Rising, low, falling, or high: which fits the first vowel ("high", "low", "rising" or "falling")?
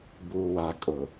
low